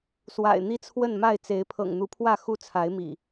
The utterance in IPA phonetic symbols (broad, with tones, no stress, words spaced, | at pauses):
swa̰˨˩ɪ̯ n̪i˦t͡sʰwə˥˨nma˥˨ɪ̯t͡se˨˦ɪ̯ pʰɤ̰˨˩ŋn̪u˨˦pʰwä˥˨ xu˥˨ t͡sʰa˨˦ɪ̯mḭ˨˩